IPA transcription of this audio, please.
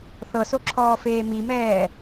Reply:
θ ɤ s o ǁʰ ɔː f eː m i m ɛː

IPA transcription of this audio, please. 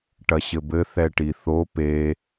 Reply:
ʈ ɐ ɕ ɘ b ɘ θ ɛ ʈ i θ o p e

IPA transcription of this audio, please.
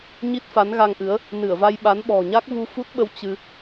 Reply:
ɲ i˦˥ t̚ f a˨˦ n ɣ a˧ ŋ ʔ ɨ˨˦ ə̯ | n ɨ˧˩ ə̯ v a˧ j ɓ a˨˦ n ɓ ɔ̤˨˩ ɲ a˦˥ k̚ v u˧ f u˦˥ t̚ ɓ ə˧ w t͡ɕ ɨ˧

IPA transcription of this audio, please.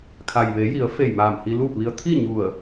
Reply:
kʰ a˩ j ʋ e˩˧ j i˩˧ ə̯ f e˧˩ j m aː˧˩ m h i˧ l uː˥˨ p̚ ʋ i˧ ə̯ t̪ʰ i˥˨ ɲ u˧˩ ə̯

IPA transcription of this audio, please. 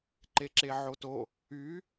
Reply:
ǃ e ǁ e ʕ o t o | y

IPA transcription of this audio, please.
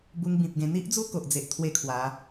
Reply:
b u˧ ŋ b ĩ˨ p̚ ɡ ẽ˧ n̪ i˦ ʔ d͡z u˥˧ k o˨ ʔ d͡z e˨ ʔ t̪ʰ w e˥˧ kʰ w a˨˦

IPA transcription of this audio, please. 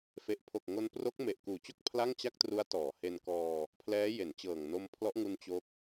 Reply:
f e˨˩ ʔ pʰ o˨˩ k̚ ŋ o˧ n p r o˦˥ k̚ m e˨˩ ʔ k uː˨˩ t͡ɕ o˥˩ k̚ pʰ l a˥˩ ŋ t͡ɕ a˥˩ k̚ t r u˦˥ a̯ t ɔː˩˦ h e˧ n k ɔː˧ | pʰ l ɛː˦˥ j e˩˦ n t͡ɕ ɤː˨˩ ŋ n o˧ m pʰ l ɔ˦˥ ʔ ŋ u˧ n t͡ɕ o˦˥ k̚

